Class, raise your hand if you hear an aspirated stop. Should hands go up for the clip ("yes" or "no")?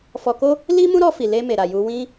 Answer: no